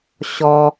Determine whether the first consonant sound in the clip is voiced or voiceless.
voiceless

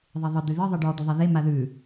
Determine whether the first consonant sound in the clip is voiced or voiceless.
voiced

